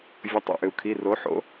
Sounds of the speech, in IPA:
vʲə˩˥tˤo̰˩˧˩ʔʏ˩u̯kʰi˩˧˩ ro˩˥ħo̰˩˥

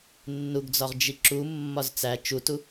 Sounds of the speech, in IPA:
nːuɡd͡zɒʁ d͡ʒiǁu mːɒzt͡sæ t͡ʃutu

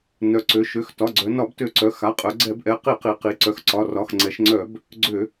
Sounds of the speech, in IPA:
nœ˩˧ǀø˩˧ʃø˩˧˩x tɒ˩˧˩ɡ͡ǀœ˩˧ nɒ˧˩˧btø˧˩˧ǀœ˩˧˩ xa˩˧˩qʼœ˩˧ ɡ͡ǀɛ˧˩˧bʔɛ˩˧˩ qi˧˩˧qi˩˧qi˩˧ ǀœ˩˧xǀɒ˩˧˩ rɒ˩˧˩xŋ͡ǀɛ˩˧ʃŋ͡ǀœ˧˩˧b | ɡ͡ǀø˧˩˧

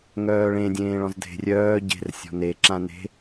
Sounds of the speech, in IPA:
ŋœːɭẽ dʲẽːɭɔ̃zdʱe̤ rʲœː ɟe̤r sʲɔ̤neǁã ne̤

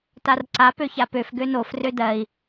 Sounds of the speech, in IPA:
tarǀa pøçapøf ɡønof rødɜi̯

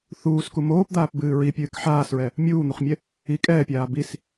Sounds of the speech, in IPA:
θuːsku moːpd̪aːpbɨː ɹipʲɨːk ħaːsɹɛ | mʲuːn̪uχmʲɛ | i kʼɛːpʲaː bis

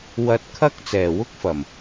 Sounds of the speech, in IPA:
wɐ˧t̚ kʰɐ˥k̚ t͡sɛː˨˩wʊ˥k̚fɐ˨˩m

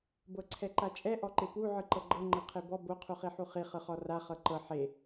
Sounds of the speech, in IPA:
bɤǀʰɛǃat͡ʃʼɛ ʔɔǃepu ʕɯǃɤɡ͡ǃɤ ŋ͡ǃɤqʰebɔ bo qʰuχiħuχi χɯχɔra χɤǃɤ ħe

